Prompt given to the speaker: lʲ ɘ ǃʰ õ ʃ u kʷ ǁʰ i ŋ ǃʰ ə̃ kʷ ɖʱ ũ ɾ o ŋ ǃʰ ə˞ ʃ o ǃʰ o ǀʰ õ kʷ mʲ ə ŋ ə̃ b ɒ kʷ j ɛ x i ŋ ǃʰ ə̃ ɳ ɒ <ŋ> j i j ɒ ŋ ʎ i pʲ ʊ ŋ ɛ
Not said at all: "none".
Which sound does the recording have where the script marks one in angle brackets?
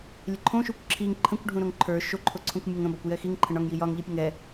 ŋ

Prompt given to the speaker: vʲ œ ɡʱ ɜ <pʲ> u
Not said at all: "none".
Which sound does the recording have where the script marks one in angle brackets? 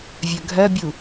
bʲ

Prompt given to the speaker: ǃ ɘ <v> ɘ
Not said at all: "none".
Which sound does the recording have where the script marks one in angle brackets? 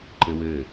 w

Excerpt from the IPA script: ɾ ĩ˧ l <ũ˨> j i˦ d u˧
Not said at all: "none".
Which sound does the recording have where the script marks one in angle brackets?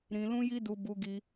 ũ˦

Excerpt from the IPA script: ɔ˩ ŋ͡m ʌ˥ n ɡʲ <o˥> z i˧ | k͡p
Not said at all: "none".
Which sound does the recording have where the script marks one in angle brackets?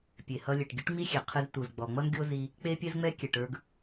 o˥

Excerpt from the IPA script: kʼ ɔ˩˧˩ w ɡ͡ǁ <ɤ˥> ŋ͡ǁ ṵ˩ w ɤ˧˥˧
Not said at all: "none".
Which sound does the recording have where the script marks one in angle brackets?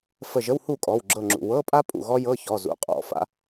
ɤ˧˩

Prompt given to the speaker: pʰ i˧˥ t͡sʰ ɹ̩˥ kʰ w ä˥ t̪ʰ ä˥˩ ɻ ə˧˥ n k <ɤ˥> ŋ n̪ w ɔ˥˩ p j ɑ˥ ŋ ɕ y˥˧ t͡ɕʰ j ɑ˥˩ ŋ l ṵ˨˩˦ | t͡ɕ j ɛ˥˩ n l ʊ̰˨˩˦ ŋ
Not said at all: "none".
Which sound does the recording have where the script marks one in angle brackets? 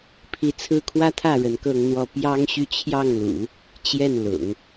ɤ˥˧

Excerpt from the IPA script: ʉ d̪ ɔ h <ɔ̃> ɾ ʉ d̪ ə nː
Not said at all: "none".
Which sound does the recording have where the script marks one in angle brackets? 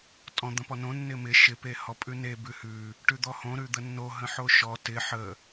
õ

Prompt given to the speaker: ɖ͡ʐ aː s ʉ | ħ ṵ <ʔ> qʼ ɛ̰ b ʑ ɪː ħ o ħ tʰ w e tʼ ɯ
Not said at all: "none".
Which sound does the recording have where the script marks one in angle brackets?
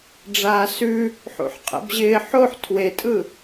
ħ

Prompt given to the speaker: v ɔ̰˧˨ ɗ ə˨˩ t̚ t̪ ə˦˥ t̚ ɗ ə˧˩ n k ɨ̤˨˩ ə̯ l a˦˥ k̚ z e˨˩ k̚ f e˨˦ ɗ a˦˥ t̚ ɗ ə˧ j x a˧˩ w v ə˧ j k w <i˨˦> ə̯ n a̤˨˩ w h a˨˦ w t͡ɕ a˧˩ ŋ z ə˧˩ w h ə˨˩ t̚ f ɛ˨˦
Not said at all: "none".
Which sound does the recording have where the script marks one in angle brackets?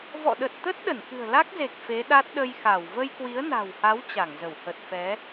i˨˦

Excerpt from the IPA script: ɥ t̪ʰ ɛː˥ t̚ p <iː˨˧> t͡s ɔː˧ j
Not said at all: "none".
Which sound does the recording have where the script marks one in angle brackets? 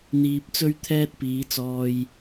iː˨˧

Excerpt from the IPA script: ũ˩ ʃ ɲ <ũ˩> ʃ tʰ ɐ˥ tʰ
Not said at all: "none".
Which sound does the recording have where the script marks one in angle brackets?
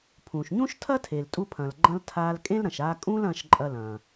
ũ˥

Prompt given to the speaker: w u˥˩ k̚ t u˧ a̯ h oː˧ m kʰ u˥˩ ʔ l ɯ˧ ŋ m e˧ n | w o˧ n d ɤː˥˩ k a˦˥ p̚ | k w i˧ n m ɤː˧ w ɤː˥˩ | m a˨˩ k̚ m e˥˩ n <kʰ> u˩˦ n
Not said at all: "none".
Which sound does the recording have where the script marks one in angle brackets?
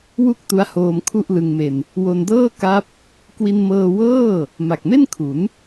kʰ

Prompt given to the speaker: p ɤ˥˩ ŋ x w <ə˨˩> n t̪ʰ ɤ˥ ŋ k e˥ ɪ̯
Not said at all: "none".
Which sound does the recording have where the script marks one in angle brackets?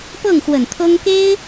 ə˨˩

